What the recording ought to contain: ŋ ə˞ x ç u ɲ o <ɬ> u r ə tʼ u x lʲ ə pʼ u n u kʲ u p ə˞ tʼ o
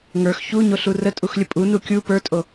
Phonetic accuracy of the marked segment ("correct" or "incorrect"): correct